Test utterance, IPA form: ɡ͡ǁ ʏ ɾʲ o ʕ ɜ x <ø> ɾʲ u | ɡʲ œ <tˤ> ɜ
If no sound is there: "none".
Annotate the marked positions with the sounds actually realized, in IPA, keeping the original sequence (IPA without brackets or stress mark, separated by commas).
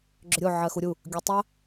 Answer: u, tˤ